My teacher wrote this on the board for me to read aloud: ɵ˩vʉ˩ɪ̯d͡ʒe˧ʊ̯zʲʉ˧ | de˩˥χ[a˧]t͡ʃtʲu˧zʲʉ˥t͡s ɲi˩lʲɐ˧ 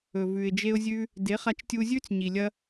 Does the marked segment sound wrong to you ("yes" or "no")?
no